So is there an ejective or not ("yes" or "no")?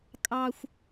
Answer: yes